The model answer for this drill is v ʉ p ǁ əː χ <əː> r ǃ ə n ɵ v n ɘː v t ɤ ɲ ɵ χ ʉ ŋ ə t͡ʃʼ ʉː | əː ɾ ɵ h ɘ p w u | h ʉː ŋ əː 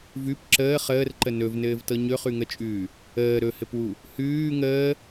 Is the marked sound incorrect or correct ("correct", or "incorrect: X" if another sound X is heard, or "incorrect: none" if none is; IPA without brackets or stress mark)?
correct